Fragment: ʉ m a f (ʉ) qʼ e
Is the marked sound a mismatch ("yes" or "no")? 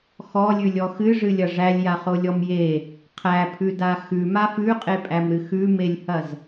no